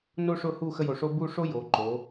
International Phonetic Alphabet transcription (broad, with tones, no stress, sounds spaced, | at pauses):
n o˥ ʂ ʊ˥˧ h u˥˧ x ə˥ j o˧ ʂ o˥ b u˥˧ ʂ o˥ j o˩˧ ǃ o˩˧